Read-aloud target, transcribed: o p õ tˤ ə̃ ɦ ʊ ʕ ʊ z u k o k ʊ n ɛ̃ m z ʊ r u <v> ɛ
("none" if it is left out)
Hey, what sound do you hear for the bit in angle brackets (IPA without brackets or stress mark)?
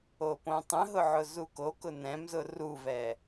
v